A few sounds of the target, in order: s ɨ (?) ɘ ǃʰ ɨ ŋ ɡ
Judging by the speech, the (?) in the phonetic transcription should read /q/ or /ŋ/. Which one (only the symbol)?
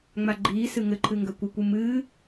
ŋ